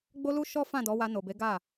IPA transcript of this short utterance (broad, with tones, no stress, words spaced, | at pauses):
ɡ͡bo˦lu˦ ʃɔ˦fã˦˨dɔ˨˦wa˧ no˨be˨˦ ɡa˦˨